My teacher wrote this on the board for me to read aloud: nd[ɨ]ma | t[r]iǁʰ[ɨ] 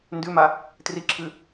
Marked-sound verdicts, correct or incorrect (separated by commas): incorrect, correct, correct